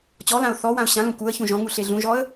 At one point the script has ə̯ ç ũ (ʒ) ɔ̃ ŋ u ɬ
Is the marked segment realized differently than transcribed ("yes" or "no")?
no